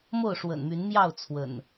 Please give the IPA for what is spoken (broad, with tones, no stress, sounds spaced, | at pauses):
m o˥˨ ʊ̯ ʂ w ə̰˨˩ n m y˨˦ n m j ɑ˥˨ ʊ̯ t͡sʰ w ə̰˨˩ n